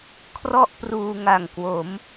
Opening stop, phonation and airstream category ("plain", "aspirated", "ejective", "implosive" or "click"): aspirated